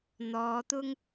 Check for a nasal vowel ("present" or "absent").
absent